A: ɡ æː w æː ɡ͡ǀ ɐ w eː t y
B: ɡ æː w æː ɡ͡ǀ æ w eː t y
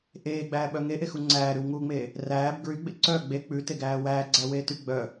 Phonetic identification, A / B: B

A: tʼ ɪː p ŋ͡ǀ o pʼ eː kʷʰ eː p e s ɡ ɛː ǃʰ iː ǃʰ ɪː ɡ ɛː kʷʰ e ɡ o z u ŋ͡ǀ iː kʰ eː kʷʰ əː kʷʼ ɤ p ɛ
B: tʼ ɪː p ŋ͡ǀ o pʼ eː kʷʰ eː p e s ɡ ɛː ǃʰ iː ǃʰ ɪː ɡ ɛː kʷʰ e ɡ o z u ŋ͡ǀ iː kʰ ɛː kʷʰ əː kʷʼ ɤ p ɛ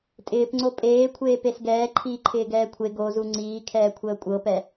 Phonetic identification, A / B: B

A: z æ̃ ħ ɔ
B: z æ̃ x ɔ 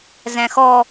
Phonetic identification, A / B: B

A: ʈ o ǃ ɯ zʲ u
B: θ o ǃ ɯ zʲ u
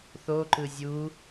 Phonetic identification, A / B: B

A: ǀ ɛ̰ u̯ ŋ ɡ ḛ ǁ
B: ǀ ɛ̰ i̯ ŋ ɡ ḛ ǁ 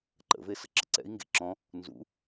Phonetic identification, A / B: B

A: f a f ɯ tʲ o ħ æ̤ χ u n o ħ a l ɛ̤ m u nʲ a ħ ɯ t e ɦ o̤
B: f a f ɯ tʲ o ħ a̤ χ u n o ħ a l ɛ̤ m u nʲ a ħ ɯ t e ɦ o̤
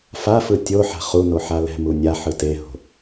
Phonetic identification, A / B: B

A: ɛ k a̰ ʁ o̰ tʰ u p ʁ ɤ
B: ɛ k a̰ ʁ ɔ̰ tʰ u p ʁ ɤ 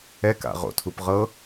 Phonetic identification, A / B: A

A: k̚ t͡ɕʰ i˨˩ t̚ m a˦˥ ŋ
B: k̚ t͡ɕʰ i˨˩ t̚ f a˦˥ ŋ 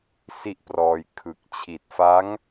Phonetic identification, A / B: B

